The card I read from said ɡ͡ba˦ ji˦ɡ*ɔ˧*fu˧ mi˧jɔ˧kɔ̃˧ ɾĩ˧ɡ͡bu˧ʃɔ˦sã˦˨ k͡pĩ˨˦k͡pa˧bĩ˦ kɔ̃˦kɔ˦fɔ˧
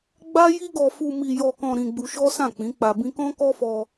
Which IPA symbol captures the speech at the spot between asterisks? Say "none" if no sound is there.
ɔ˧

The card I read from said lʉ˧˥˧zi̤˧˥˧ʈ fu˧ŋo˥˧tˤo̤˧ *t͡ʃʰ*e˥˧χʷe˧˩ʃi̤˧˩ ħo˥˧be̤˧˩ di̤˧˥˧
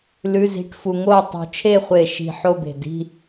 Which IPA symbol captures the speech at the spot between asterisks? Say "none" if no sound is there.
t͡ʃʰ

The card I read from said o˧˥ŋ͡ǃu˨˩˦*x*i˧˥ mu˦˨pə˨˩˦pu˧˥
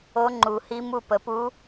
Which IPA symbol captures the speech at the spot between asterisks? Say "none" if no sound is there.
h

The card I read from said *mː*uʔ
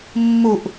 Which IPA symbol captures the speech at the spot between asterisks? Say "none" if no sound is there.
mː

